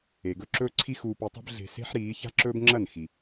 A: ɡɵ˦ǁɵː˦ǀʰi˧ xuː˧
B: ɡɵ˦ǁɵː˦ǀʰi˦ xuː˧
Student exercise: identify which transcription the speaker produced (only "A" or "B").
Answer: B